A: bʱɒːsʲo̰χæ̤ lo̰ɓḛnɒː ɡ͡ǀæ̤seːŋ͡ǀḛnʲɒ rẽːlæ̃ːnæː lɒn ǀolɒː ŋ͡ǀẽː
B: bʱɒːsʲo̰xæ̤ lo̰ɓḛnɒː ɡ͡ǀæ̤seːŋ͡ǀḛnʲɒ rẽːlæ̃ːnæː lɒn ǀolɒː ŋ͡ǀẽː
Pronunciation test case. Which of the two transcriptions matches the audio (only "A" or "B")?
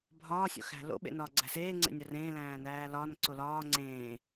B